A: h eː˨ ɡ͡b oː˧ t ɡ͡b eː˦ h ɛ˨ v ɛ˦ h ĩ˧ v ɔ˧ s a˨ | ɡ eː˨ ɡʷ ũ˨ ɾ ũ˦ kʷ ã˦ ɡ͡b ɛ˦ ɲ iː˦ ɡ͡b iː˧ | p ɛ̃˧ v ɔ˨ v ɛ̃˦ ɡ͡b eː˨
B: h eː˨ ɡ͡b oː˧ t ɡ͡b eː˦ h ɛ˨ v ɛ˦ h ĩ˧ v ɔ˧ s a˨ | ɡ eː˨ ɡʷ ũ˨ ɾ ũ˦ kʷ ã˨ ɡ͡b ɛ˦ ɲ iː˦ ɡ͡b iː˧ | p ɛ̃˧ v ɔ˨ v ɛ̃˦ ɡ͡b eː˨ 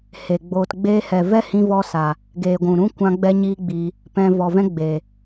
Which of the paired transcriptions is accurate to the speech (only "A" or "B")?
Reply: A